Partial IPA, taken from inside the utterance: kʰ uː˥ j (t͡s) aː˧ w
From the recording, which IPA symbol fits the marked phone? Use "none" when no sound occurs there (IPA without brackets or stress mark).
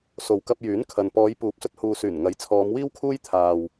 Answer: t̪ʰ